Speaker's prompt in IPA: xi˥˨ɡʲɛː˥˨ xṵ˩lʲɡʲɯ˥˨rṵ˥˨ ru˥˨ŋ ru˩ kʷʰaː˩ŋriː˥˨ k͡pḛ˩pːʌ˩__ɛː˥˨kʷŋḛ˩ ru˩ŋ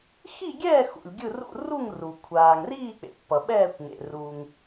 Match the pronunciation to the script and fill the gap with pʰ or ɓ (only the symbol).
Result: ɓ